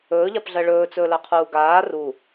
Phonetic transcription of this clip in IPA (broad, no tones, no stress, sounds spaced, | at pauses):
ɵː ʎ a p ɮ ɜ ɭ ɵː t͡s ɵː l ɜ qʰ uː ɡ aː r u